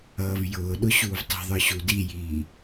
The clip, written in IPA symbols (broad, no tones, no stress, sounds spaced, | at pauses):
ʌː v j ʊː ɗ ʊ ɕ uː v tˤ i̤ ðˤ ə˞ ɕ u d i j iː